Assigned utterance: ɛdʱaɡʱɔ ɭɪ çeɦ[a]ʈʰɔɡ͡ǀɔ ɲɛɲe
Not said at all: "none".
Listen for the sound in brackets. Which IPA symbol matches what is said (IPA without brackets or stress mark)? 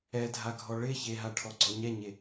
a